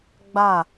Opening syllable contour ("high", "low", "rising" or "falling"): falling